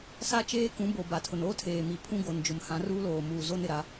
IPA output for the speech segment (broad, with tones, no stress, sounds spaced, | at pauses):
s a˦ t͡ʃ eː˦ k ũ˨˦ b o˨ b a˨ tʰ ʊ˨ n oː˦ tʰ eː˨ m i˨ pʰ ũ˦ ɡ o˨ n d͡ʒ ʊ˨ m h ã˨˦ r uː˦ l oː˨ m uː˨ z o˦ n ɪ˨ ɾ a˨˦